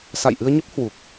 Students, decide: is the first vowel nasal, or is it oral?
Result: oral